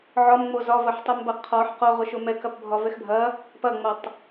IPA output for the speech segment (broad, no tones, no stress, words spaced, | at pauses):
ʕɒmŋ͡mo zɒvɐħtˤʊmbɐ qʰɒħ qoʁʊ ʃʊmɛkɐpbʱɒ vɛxbʱɐ | pɐŋ͡mɐtˤ